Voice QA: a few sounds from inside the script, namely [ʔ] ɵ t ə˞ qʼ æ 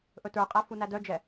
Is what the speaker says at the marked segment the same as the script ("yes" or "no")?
yes